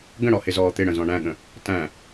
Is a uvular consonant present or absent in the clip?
absent